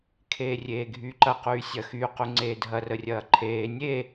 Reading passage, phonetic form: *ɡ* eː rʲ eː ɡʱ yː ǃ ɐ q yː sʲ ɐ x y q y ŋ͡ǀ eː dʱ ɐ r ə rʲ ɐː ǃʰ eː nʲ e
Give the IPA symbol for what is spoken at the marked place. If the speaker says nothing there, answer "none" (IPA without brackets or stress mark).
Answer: kʰ